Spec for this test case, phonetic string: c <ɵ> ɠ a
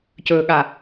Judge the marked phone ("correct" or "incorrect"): correct